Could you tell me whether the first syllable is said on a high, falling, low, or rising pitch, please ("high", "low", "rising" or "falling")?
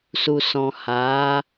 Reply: low